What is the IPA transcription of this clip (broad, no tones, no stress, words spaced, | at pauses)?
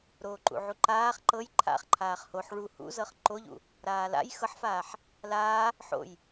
ɾoːǃṵʕuǃaːχ ǃɤj ǃʰa̰χǃʰaːχ hoħ ɭu hṵzɤχ ǃoʎṵ | ɾaːla̰j xɤħfaːħ | laː | ħo̰j